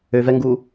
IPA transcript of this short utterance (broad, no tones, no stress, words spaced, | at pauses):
øvɛŋɡu